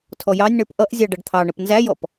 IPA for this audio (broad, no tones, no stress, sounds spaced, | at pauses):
tʰ ɔ j ɑ nʲ ɳ ə˞ p ʔ ʌ ʔ zʲ ɑ ɖ ʌ ɖ t̪ʰ ɑ ɳ ə p n z æ j ɔ p